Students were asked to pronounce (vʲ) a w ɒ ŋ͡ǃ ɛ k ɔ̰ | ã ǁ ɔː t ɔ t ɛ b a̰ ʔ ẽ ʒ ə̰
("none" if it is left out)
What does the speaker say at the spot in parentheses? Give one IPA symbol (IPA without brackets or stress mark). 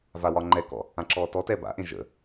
v